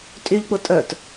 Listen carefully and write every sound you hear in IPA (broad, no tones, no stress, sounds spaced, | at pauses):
tʼ y ʎ k͡p ʊ tʼ œ t